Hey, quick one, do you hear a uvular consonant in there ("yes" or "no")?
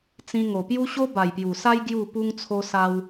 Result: no